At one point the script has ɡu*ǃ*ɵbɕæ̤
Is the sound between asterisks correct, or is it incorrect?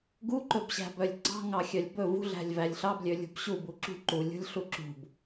correct